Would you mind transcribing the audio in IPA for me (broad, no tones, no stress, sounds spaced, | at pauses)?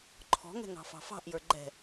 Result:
ǃʰ ɔ̤ ŋ ɛ̤ ŋ ɑ̤ f ɑ̤ f ɑ̤ ʔ j ə˞ ɡ͡ǃ ɛ̤